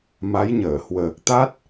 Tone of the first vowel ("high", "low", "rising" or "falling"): rising